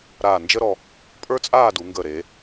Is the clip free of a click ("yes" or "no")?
yes